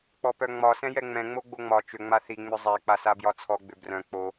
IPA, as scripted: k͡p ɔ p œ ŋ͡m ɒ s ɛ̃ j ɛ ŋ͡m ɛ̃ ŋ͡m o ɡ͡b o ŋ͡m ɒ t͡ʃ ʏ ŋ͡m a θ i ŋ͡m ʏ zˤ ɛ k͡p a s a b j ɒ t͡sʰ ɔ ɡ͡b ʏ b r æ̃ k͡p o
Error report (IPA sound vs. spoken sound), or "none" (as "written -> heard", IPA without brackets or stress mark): æ̃ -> œ̃